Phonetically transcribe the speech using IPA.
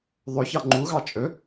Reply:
ðˤ ɵ ç ɑ ŋ͡ǃ u ɣ ɑ t͡ʃʼ ɵ

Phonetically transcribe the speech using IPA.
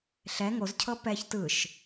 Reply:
ɬ ɛ ŋ o z cʰ ɤ p ɛ ç t ɯ ʃ

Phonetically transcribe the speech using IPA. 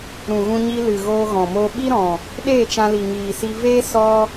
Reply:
ɾ ũ˨ ɣ ũ˧ ɲ i˧ l ɨ˨ ɣ oː˧ ɣ ɔ̃˨ m o˧ ɓ i˦ ɾ ɔ̃˨ | ɗ eː˦˨ t͡ʃ ã˧ l i˨ ŋ iː˨ s i˧ v eː˦ s ɔ˦

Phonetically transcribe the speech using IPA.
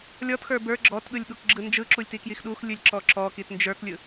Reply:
lʲ ɔ t x ə˞ b ə˞ ɡ͡ǁ ɔ t ɠ ɯ lʲ ɠ u k ɡ͡ǁ ɯ n d͡ʒ ɯ ǁ u lʲ t i k j i x ɗ u x lʲ ɯ lʲ ǁ ɔ ǁ ɔ k i t n d͡ʒ ə˞ k lʲ ɯ

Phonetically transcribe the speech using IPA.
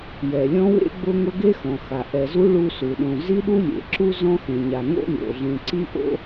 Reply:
j ɛ˩ lʲ ɔ̃˦ w ḛ˥ ɡ͡b ʊ˦ ŋ ʊ˦ ɡ e˥ x ɔ̃˩ x a˩ ʔ ɛ˨ z u˥ ɭ u˦ s u˩ ɗ õ˨ z i˥ ɗ u˥ lʲ ḛ˩ ǁ u˥ z ɔ̃˥ x ẽ˩ ɲ a˩ ŋ o̰˦ lʲ o̰˩ ɮ ẽ˨ ǀ i˦ ʔ o̰˦

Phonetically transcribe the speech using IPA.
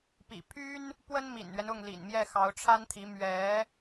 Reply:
p ḭ˨˩ pʰ y˥ n | p w ə˥ n m ḭ˨˩ n ɥ ɛ˦ n ʊ˥˩ ŋ l ḭ˨˩ n m j ɛ˥˩ x ɑ˧˥ ʊ̯ ʈ͡ʂʰ a˥ n t̪ʰ i˧˥ m ɥ ɛ˧˥

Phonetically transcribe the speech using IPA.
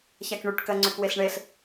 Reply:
ç a k ɳ y ʈ k ɜ ŋ͡ǀ ʏ k w e ɬ ɳ e ɬ

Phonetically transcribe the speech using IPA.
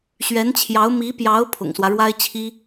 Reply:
ɕ ɥ ɛ˧˥ n t͡ɕʰ j ɑ˧˥ ʊ̯ m i˧˥ p j ɑ˧˥ ʊ̯ pʰ ʊ̰˨˩ ŋ s w ä˦ ɻ w a˥ ɪ̯ t͡ɕʰ i˥

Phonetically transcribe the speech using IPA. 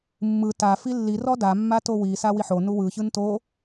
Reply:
mː ɯ t a f i lː i r ɔ d a mː a t o w i s a w i ħ o n u w ɯ ç ɯ n t o

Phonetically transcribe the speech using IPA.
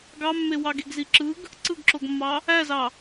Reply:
ɡ ɑ mː e w ɑ ɡ e ɡ z i ǁ ɯ ɡ | ǀ ɯ ɡ ǁ o ɡ mː ɑ | æ z ɑ

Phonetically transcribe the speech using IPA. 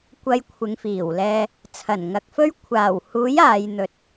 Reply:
kʷ ɐ˧ j kʷʰ ɪ˨˧ ŋ f iː˨˩ w l ɛː˨ | t͡sʰ ɐ˨˩ n ŋ ɐ˨ k̚ f ɵ˥ ɥ kʷʰ aː˨˩ w h uː˨˥ j aː˨˧ j n̪ ɵ˨ t̚

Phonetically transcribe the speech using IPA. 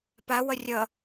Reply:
p a w ʌ rʲ ʌ

